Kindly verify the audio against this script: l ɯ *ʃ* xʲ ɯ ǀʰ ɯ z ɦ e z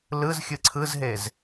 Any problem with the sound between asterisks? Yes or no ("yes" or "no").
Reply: yes